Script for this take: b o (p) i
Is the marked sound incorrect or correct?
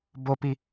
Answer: correct